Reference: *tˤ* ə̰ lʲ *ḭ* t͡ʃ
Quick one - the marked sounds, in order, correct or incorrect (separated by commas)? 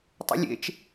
correct, incorrect